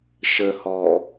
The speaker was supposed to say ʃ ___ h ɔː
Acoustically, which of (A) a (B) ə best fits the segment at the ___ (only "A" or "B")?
B